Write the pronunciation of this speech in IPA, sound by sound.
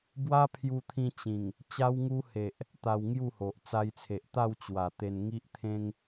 b w a˦ pʰ j u˧ t̪ʰ ĩ˧ t͡ɕ ĩ˨˩ ŋ | t͡ɕ a˧ w ŋ u˧ h e˨ ʔ | t̪ a˧ w ŋ j u˥˧ h o˨ ʔ t͡s a˧ j t͡sʰ e˨ ʔ t̪ a˥˧ w t͡ɕ w a˨˩ t̪ e˧ n ŋ i˦ ʔ t̪ʰ ẽ˦ ŋ

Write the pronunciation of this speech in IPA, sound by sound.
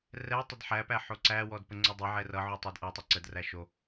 r ɛ tˤ ɛ d ħ æ p æ ħ o ǀ æ w ɔ d p ə ŋ͡ǀ o dˤ ʌ ʕ ɛ r ʌ ʕ o tˤ æ d ʔ ʌ tˤ ʌ ǀ ə d r æ ʃ o

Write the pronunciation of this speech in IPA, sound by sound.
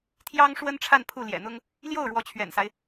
t̪ʰ j ɑ˥ ŋ ʂ w ə˥ n ʈ͡ʂʰ a˥˧ n pʰ u˥˩ l j ɛ̰˨˩ n̪ ʊ˥ ŋ | l j o˥˩ ʊ̯ ɻ w ɔ˧˥ t͡ɕʰ ɥ ɛ̰˨˩ n s a˦ ɪ̯

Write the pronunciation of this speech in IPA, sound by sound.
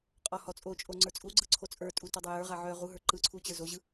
qʼ ɔ h ɔ t͡sʼ o t͡ʃʼ o ŋ͡ǀ ə˞ t͡sʼ u ɡ͡ǀ ɯ ǀʰ o t͡sʼ ə˞ tʼ u t ɔ dˤ ə˞ j ə˞ ʁ a ʕ œ ʁ u ɦ ə˞ ǃ ɯ ǀʰ u t͡ɕ ə˞ z o ʑ ɯ

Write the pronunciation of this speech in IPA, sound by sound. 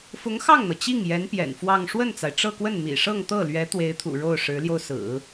f ʊ˧˥ ŋ x ɑ˥˩ ŋ n̪ ɤ˩ t͡ɕ i˥˩ ŋ j ɛ˧˥ n p j ɛ̰˨˩ n f w ɑ˥˧ ŋ ʂ w ə˥˩ n t͡s a˩ ɪ̯ ʈ͡ʂ ɤ˥˧ k w ə˥˩ n m ḭ˨˩ ʂ ɤ˥˧ ŋ t̪ ɤ˥˩ l ɥ ɛ˧˥ t̪ w e˧˥ ɪ̯ t̪ʰ ṵ˨˩ ɻ o˥˩ ʊ̯ ʂ ɻ̩˧˥ l j o˧ ʊ̯ s ɹ̩˨˩˦

